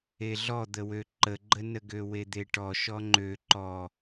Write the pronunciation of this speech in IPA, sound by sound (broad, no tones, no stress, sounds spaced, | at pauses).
e ɮ ɔ d̪ ə w ø ǃ ə ɡ͡ǃ ə n ə ɡ ø w e d̪ e ʈ ɔ ʃ ɔ ŋ͡ǃ ø ǃ ɔ